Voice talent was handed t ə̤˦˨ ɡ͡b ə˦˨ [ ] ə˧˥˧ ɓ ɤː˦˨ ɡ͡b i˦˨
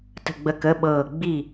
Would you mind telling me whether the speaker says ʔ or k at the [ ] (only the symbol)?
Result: k